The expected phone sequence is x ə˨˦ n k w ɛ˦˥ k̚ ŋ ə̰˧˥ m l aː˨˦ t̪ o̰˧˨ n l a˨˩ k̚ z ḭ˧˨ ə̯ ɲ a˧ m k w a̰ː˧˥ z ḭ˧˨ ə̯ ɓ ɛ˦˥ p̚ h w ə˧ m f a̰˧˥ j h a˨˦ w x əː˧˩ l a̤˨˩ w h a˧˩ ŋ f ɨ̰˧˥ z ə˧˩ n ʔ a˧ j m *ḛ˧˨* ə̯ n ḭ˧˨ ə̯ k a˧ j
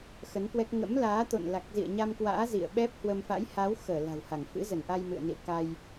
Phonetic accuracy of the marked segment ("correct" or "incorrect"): incorrect